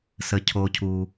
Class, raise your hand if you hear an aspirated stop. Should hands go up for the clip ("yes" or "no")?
yes